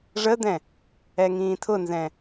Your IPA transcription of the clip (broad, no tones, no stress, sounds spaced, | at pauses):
ʐ ə d̪ ɛ̃ | ɛ ŋ ĩː tʰ ʊ n z ɛ̃